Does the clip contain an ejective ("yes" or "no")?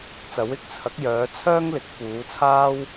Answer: no